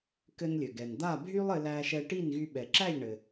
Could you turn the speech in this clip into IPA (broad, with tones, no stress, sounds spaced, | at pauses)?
k ɘ˧ n lʲ ɘ˩ ɡ ɛ˩ n d̪ a˥˩ bʱ y˥ lˠ ɘ˧ l æ˧ ʃ ɛ˧ ʈ i˥˩ n ɣ y˧ ɓ ɛ˩ ǁ æ˥˩ ʎ ɳ ɘ˩